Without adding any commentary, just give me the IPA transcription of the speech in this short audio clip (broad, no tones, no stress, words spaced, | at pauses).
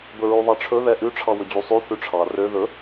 bɵɹʉðˤɑʈ͡ʂʰɵ ðɛʔʉ ʈ͡ʂʰɑwɵd͡ʑusˤʉ θʉʈ͡ʂʰɑ rø ðɵ